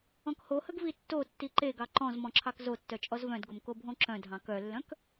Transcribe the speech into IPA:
ɔ̃ k h o h ə ɡ v i tː o tː i ǃ e ɡ ɑ ǃ ɔ̃ z m ɔ̃ ǁʰ ɑ k z o tː œ t͡ʃʼ ɔ z v œ̃ d ɡ o m k o bʱ õ ǁ œ̃ dʱ ɑ̃ k œ lː œ̃ k

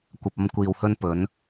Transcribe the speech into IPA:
kʷ ɐ˨ p̚ ɐ˧ m kʷ iː˨ w h ɵ˧ n p ɵ˨˧ n

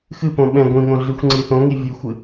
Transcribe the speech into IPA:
x ɨ p õ ɓ ɛ̃ ɡʷ ĩ ŋ õ ɮ ɨ xʷ ŋ͡ǀ i θ õ ŋ i vʲ ɨ xʷ ɨ

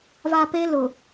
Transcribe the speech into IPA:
v a˨ p e˦ l ʊ˨

